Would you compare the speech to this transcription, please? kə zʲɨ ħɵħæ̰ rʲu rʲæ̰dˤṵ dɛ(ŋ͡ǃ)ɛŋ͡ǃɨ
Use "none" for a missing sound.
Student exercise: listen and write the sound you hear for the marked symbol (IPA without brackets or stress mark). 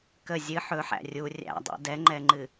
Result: ŋ͡ǃ